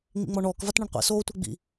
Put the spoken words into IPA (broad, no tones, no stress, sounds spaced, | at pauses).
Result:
ŋ͡m ḭ ŋ͡m ɔ ɳ ɔː k v a t ɳ ɐ ɳ qʷ ḭ s oː tʷ e ɡ͡b ḭ